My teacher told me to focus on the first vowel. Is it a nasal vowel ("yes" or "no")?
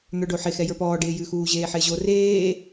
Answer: no